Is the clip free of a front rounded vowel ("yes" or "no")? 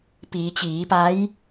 yes